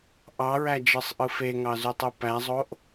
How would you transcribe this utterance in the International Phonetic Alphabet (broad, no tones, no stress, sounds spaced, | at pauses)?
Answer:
ʔ ɑ ɹ æ d͡ʒ ɯ sˤ ʔ ɯ f e ŋ ɑ z y tˤ ɯ p æ zˤ o ʔ